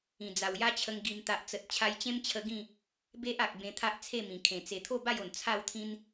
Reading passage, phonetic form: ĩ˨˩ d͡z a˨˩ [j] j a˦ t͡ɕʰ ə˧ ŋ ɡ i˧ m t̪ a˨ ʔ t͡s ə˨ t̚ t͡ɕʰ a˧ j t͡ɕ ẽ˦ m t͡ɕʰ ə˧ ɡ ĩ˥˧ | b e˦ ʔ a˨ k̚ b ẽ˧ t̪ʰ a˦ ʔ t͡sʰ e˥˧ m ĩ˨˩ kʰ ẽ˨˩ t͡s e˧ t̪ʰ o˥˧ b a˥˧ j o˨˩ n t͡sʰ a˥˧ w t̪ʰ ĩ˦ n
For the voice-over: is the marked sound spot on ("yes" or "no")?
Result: no